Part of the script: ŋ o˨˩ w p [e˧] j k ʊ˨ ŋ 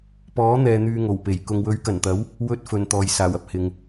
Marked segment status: incorrect: e˨˩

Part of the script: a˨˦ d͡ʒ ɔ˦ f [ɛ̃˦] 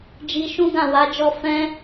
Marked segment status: correct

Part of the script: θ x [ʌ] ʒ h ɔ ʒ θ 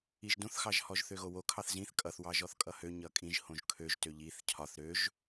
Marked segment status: incorrect: ɑ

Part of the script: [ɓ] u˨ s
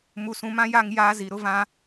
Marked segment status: incorrect: m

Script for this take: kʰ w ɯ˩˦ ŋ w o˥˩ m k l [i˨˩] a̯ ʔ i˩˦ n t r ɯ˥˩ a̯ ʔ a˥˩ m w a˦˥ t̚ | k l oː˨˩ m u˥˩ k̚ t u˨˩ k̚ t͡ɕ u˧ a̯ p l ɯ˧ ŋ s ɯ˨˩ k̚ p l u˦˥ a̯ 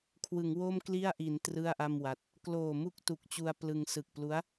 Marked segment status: incorrect: i˥˩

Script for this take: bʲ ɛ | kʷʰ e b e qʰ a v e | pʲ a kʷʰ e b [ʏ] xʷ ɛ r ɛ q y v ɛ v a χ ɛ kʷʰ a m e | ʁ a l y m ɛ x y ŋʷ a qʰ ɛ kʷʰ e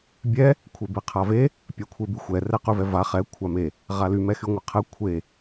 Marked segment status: incorrect: y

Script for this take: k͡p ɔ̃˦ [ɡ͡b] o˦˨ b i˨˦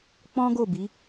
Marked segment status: incorrect: ɡ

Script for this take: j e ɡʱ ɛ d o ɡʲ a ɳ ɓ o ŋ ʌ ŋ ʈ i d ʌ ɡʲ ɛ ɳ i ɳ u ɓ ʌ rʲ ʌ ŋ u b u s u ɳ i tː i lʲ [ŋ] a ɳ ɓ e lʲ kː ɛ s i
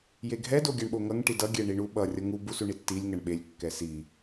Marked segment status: correct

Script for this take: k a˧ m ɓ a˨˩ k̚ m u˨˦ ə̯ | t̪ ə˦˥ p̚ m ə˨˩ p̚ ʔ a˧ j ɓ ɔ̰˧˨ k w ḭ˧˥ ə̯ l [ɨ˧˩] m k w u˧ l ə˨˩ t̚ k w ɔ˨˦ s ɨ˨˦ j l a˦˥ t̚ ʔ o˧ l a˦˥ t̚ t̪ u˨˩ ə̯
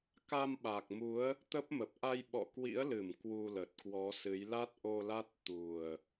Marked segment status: correct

